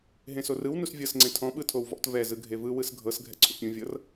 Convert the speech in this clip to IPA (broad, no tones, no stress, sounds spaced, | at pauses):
ɦ ẽ s o r ɯ w n u s vʲ ɤ s ŋ͡ǀ ẽ tʰ ɔ̃ ɓ ɯ tʰ o w v ɔ̰ t v ɛ z ɯ ɡʱ e v ɯ w ɯ s ɡʱ ɤ s ɡʱ ɛ̰ ǀʰ ṵ pʲ ũ vʲ ɤ r